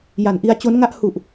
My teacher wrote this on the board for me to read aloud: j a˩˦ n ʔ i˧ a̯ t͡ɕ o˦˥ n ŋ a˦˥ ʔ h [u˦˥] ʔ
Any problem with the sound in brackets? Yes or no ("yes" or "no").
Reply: yes